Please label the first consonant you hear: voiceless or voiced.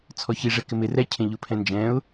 voiceless